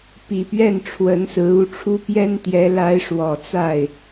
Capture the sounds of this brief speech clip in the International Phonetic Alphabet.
p i˨˩ p ɥ ɛ˥˩ n ʈ͡ʂʰ w ə˧˥ n s ɹ̩˧˥ u˥˩ ʈ͡ʂʰ u˥ p j ɛ˥ n t̪ j ɛ˧˥ l a˧˥ ɪ̯ ʂ w ɔ˨˩ t͡s a˥˩ ɪ̯

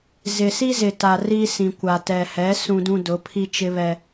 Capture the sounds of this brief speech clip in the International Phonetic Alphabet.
z ɪ˨ s i˦ z ɪ˨ t a˨ r i˦ s ĩ˨ kʷ a˨ t ɛ˨ h ɛ˨˦ s ũ˦ d ũ˦ d ʊ˨˦ pʰ i˦ t͡ʃ ɪ˦ β ɛ˦

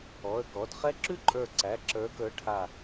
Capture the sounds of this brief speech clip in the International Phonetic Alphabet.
ɔ˩˧˩ ə̯ k ɔ˩˧˩ d χ ɛ˥ ǁ ʉ˥ ǃʼ ə˞˧˩ ǀ æ˩˧˩ ǁ ə˞˨˦ k ə˞˨˦ ʈʰ a˧˩

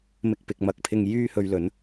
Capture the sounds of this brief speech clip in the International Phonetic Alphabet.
m ɪ˧ k̚ p ɪ˨ k̚ m ɐ˧ k̚ pʰ ɪ˧ ŋ j yː˥ h ɵ˧ ɥ l ɵ˨˥ n

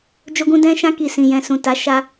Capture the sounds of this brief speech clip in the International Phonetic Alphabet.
d͡ʒ o˧ ɡ ũ˧ d ɛ̃˧ ʃ ã˧ k i˨ s ĩ˨ j ɛ̃˨ s ũ˨ t a˨˦ ʃ a˧

